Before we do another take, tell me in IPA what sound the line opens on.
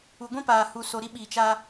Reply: u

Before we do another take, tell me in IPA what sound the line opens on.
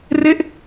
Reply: r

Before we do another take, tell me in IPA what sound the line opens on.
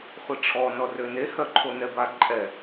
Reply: χʷ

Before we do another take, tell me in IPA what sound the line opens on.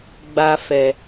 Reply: ɡ͡b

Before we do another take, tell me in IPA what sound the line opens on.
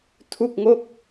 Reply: tʰ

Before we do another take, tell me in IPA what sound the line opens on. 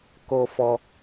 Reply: k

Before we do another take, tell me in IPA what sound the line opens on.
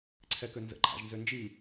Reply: ǀʰ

